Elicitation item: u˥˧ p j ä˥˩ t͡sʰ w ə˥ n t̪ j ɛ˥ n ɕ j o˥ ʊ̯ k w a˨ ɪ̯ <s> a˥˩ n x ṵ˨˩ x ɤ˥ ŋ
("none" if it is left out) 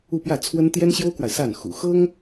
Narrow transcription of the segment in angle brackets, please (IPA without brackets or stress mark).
s